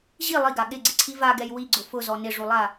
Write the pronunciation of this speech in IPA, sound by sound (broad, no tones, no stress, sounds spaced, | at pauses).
ʑ i lˠ i ɡ a ɠ ɪ ɡ͡ǀ ɪ ǀʰ i v a ɡ ɛ j w i ɡ͡ǀ ʊ f ʊ z ɔ n ɪ ʐ u lˠ a